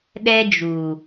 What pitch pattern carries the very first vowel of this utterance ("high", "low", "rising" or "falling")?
high